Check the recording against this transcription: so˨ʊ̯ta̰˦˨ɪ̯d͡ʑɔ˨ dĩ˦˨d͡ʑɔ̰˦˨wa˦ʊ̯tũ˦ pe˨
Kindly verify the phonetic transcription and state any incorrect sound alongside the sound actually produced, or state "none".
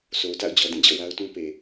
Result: ɪ̯ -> ʊ̯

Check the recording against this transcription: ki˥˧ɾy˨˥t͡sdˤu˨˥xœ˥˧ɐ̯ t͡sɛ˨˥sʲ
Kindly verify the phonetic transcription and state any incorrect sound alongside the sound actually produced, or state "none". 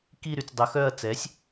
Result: none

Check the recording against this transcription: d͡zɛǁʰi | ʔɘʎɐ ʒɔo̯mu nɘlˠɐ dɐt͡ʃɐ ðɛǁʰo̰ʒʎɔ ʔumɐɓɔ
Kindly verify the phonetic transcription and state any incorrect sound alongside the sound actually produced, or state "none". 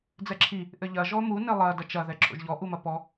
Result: ɓ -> p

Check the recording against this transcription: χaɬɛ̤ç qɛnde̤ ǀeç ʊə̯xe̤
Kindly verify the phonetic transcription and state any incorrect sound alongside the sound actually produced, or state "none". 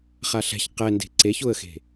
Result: none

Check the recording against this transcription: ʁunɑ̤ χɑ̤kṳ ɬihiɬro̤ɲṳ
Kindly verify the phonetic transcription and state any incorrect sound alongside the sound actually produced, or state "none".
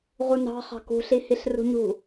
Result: o̤ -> ṳ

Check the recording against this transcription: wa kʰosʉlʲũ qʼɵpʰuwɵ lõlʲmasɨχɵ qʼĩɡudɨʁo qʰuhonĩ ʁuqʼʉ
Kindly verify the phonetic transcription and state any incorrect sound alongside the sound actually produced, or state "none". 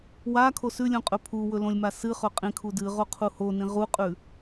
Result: ɡ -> kʰ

